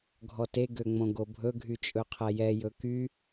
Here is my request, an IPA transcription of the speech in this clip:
ɡʱɔte ɡøŋ͡mõɡobʱɵ ɡʱyt͡ʃʼɵqʰɛjɛ jɵky

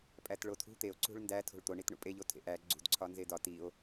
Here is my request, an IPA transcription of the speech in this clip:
pʼætɭotʰṳ t̪eo̯ ǀṳɭndæ tʰo̤ɭt̪o ɳitɳṵpʼe ʎotʰḛʔæ ɡ͡ǀṳd ǀʰɒnzedɒ tio̯

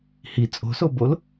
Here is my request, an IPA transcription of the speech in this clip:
hi t͡sʼo̤sobol

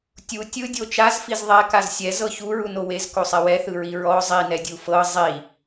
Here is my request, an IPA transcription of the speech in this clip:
tʲu tʲɯdʲo t͡ʃazfiz ðˤɛkaz sʲɛzɤ çuɹuno wezkosˤɛ wɛθɯɹi ɹɔ zˤinɛdʲu fɤ zˤi

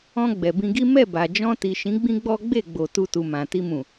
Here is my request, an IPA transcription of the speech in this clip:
ɔ̃˧ ɡ͡bɛ˨bĩ˧ɡi˦ mɛ˦˨ba˨ d͡ʒɔ̃˧ti˨ʃĩ˨˦ ɡ͡bĩ˦ɡ͡bɔ˦ɡ͡be˦˨ɡ͡bo˨ tu˧tu˨ mã˨ ti˧mũ˨

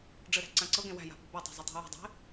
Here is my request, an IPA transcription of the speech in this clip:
ɖ͡ʐɘɾæ̤ ǀãǀɤɡẽ wæ̤ja̤ pṳbutˤe̤ zˤɘtˤi̤ji̤dˤe̤

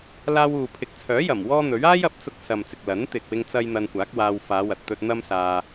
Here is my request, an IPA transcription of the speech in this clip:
laː˧wuː˨pʰɪ˨k̚t͡sʰœː˨˥ jɐ˨˩mwɔː˥n̪ɵ˨˥ɥ aː˥jɐ˨p̚t͡sʊ˧k̚ sɐ˨m t͡sɪ˨k̚lɐ˨˥n t̪ɪ˨k̚wɪ˧ŋt͡sɐ˧j n̪ɐ˧nkʷaː˨˥k̚waː˧w faː˨˧wɐ˨t̚t̪ɵ˧t̚ n̪ɐ˥msaː˧

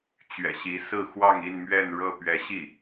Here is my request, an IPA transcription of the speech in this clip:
t͡ɕɥɛ̰˨˩ɕi˧˥sɹ̩˥˧xwɑ˥˧ŋ i˥˧nmɥɛ˥˧nɻɤ˥˩ pɥɛ˧˥ɕi˥˩

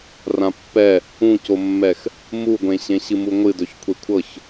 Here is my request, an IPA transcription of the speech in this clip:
rãpːɛ | ũcomːɛx | muɡʷẽ ɕẽɕɨmuŋʷɨ dɵçkʷʰekʷʰɤç

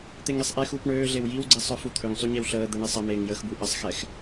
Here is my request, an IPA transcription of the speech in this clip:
t̪eŋesˤʔexuːp ɳøːɮew jiwɡ͡ǀi sˤœfut̪ʰøŋsˤy ɲɛwɬəːd̪ɛ ɳisˤəmeːŋ jəxbu ʔəsˤxɛx

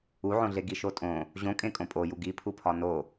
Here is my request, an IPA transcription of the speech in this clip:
uʕõɮe ɡiʃotʼõ | ʑõ kʼẽkʼõpʼoju ɡipʰupʰɒ no

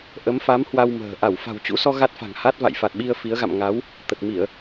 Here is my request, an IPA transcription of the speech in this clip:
ʔə˨˦mfa˨˦m hwa˧wmə̤ː˨˩ ʔa˧˩wfa̤˨˩wt͡ɕṵ˧˥sɔ˧ ɣa˦˥t̚fa̤˨˩ŋha˦˥t̚ va̰˧˨jfa˨˩t̚ɓi˧ə̯ fi˨˦ə̯ɣa̰˧˨m ŋa˨˦w | t̪ə˨˩t̚mi˧˩˨ə̯

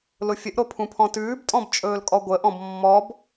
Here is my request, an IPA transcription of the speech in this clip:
lʊfʲəʔɾo pʰũpʰɔ̃tʉːbtʼɔ̃b t͡ʃʼɵːlkʼɔɡʷəʔɔ̃b mːɔb

